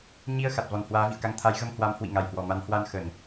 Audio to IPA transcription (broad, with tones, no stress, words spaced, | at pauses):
ɲi˧ə̯ xa˨˩t̚vɔ˨˩nhwaː˨˦ vḭ˧˨ə̯ka˧ŋ t̪ʰa˨˦jɣə˧mhwa˨˦m hwḭ˧˨ŋa˨˩jhwɔ˨˩ma˨˦n hwa˧n xə˧˩˨n